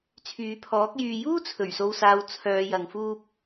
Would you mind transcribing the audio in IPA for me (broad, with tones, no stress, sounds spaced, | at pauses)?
t͡sʰ yː˨˧ pʰ ɔː˨˥ k̚ j yː˧ j uː˥ t͡sʰ ɵ˨˩ ɥ s o˨ w s aː˨ w t͡sʰ œː˨˧ j ɐ˨ ŋ f uː˥ p̚